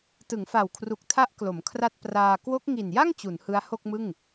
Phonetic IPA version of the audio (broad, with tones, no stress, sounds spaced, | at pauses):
t ɯ˩˦ ŋ f a˨˩ w kʰ r u˨˩ k̚ tʰ a˦˥ ʔ k l o˩˦ m kʰ r a˥˩ t̚ p r aː˧ k w o˦˥ k̚ ŋ i˨˩ n j a˥˩ ŋ t͡ɕ u˩˦ n h ɯ˦˥ a̯ h o˥˩ k̚ m ɯ˥˩ ŋ